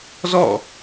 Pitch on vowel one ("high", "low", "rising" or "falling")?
falling